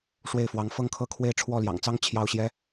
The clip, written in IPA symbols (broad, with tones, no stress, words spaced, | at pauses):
ʂwe˥˩ɪ̯fwɑ˧˥ŋ fɤ˥˧ŋkʰɤ˥˧kʰwe˥˧ɪ̯ ʈ͡ʂʰwɔ˥˩ljɑ̰˨˩ŋt͡sɑ˥ŋ t͡ɕʰjɑ˥˩ʊ̯ɕjɛ˥